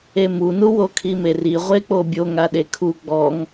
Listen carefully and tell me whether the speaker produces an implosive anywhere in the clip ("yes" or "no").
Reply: yes